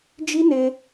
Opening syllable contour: high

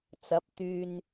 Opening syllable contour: rising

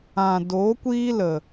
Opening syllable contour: low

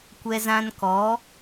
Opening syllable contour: high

